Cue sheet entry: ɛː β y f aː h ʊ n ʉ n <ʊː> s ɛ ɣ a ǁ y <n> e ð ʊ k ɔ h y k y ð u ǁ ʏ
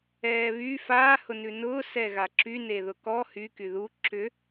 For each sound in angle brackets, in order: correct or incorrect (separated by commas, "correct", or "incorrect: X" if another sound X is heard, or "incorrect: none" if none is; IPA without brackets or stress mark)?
correct, correct